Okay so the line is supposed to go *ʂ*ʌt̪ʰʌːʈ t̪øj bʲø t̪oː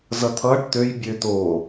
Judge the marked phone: incorrect: z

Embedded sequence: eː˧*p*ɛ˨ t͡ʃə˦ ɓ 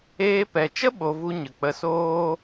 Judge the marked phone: correct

